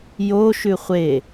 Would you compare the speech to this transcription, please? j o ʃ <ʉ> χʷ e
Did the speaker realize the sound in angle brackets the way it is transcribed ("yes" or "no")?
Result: yes